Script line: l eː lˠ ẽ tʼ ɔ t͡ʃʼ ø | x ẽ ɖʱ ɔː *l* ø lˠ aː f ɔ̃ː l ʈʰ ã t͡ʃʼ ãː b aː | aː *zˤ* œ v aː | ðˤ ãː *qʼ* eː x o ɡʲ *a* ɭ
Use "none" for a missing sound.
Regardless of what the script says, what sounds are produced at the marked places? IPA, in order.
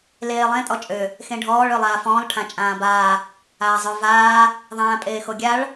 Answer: ɭ, zˤ, pʼ, a

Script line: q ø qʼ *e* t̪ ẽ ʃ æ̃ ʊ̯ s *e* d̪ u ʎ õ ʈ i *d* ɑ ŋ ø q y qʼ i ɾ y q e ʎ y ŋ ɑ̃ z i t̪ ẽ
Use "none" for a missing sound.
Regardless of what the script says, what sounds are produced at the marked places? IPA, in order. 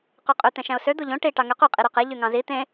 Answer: ø, ø, ʈ

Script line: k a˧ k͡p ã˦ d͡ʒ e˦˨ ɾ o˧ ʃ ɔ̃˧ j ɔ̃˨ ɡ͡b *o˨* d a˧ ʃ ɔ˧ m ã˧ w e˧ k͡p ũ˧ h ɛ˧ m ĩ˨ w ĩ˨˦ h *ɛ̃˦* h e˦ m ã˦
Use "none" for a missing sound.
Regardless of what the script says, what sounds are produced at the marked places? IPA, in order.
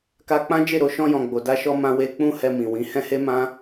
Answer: o˨, ɛ̃˦

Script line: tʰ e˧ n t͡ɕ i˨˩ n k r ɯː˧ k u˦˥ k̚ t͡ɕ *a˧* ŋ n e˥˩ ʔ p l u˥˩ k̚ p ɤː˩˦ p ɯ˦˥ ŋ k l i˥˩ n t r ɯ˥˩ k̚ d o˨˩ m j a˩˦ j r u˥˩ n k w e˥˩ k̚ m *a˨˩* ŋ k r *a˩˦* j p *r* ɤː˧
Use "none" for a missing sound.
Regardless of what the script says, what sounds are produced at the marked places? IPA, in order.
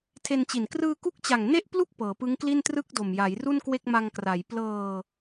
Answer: a˨˩, a˧, a˩˦, l

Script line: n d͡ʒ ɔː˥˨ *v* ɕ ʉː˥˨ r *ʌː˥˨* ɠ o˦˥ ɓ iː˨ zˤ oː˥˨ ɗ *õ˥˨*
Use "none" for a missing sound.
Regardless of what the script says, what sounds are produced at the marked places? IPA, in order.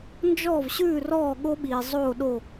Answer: v, ɔː˥˨, o˥˨

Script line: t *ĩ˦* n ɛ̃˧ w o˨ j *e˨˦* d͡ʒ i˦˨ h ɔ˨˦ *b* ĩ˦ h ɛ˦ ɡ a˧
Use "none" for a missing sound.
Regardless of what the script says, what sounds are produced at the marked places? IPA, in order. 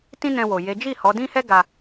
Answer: ĩ˦, e˨˦, d

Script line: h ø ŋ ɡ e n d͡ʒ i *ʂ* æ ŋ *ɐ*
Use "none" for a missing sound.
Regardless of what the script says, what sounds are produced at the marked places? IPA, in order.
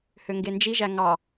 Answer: ʒ, ɑ

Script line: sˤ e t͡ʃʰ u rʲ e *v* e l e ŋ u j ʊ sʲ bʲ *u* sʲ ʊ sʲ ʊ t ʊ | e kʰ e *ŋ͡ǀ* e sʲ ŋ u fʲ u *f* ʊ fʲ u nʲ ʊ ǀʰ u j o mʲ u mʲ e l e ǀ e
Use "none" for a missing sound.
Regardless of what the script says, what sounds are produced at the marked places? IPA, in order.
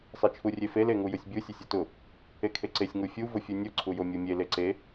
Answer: f, u, ǀ, v

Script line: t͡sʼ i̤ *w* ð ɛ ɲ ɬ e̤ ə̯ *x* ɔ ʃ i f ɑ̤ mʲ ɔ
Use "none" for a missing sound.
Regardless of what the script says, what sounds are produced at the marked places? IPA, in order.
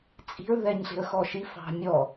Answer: ɹ, x

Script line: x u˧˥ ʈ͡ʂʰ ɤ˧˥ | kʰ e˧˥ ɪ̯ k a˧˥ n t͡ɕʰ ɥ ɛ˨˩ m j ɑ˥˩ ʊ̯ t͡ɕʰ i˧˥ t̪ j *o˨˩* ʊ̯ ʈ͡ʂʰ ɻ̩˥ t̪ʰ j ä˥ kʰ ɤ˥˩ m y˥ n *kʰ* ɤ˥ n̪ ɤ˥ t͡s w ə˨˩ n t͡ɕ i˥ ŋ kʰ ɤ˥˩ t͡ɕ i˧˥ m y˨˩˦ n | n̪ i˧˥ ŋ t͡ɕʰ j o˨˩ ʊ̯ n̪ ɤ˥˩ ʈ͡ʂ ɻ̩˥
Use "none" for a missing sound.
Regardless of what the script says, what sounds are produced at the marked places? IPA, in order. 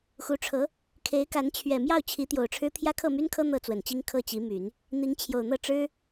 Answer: o˨˩, kʰ

